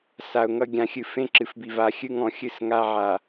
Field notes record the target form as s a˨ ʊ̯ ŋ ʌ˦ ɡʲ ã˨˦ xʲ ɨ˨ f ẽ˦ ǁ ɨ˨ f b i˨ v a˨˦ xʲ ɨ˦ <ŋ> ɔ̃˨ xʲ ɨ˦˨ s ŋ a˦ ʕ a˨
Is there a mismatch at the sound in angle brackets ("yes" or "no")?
no